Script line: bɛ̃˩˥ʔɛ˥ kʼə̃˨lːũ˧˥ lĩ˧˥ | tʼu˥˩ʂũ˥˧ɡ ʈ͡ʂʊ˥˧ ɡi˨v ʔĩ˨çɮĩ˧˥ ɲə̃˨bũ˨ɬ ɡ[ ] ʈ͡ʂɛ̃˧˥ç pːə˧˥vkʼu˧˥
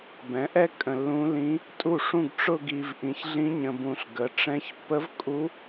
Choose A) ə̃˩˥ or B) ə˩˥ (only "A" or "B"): B